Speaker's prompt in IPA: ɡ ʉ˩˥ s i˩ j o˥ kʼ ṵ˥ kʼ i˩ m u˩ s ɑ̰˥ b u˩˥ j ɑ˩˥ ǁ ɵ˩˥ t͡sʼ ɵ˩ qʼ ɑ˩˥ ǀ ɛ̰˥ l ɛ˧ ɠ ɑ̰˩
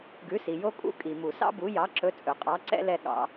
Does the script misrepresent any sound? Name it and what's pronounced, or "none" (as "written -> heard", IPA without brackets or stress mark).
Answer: none